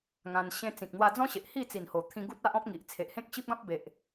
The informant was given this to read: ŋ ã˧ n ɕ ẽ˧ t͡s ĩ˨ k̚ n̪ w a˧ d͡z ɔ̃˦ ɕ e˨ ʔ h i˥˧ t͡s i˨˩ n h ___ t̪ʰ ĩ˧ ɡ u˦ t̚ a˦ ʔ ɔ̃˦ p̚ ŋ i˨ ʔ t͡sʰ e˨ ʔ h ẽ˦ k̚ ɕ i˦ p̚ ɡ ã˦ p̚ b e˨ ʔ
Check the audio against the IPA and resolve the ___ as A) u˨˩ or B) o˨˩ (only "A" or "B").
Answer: B